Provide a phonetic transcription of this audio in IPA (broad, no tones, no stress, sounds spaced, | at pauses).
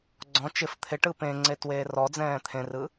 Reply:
ɡ͡ǀ ɔ̃ t͡ʃ ɪ f t̪ʰ ɪ ʈ ɯ p ẽ ŋ͡ǀ e t w eː r ɔ d͡z ɛ̃ː t̪ʰ ẽ r ɯ